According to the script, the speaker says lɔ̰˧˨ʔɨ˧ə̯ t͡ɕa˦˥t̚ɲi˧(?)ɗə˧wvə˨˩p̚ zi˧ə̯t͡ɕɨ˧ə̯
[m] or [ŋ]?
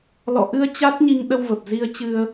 ŋ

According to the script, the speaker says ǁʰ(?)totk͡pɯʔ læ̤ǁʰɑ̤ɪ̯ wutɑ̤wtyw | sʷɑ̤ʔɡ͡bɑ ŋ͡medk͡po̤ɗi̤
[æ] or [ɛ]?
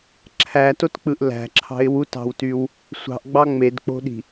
æ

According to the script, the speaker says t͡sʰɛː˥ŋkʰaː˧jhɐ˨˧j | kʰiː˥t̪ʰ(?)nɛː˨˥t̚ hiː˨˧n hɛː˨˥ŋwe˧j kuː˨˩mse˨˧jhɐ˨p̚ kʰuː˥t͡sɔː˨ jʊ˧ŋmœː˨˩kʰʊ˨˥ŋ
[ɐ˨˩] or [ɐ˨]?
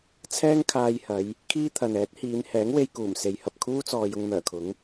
ɐ˨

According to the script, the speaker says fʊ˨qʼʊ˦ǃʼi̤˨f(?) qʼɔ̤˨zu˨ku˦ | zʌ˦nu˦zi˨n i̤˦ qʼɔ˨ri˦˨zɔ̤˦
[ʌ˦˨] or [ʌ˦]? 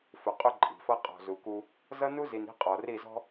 ʌ˦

